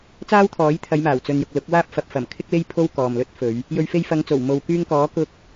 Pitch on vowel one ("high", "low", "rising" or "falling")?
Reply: high